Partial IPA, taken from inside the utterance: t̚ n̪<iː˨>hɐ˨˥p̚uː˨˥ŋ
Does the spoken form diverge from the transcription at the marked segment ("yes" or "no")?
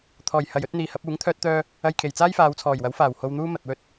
no